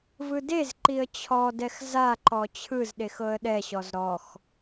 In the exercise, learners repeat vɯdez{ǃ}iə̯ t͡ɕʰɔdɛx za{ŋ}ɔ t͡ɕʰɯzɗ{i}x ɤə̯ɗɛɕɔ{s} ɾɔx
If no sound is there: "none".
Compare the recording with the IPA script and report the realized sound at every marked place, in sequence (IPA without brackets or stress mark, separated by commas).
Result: ǃ, ǃ, e, z